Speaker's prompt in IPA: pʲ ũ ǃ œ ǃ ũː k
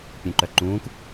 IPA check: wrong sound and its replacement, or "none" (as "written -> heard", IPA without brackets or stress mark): none